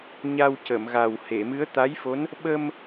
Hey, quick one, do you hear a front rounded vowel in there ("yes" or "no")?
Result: no